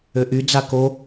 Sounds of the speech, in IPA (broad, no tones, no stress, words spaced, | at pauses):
øʔy d͡zako